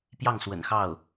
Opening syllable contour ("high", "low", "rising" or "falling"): falling